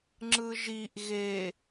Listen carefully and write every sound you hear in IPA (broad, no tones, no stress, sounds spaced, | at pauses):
ŋ͡ǁ ɯ ʒ i ʔ ɣ e